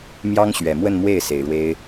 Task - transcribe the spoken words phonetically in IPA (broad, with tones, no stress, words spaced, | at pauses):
mjɑ˥ŋ ɕɥɛ˨˩mwə˥˧nmwe˥˩ɪ̯ se˨˩ɪ̯ɻwe˥ɪ̯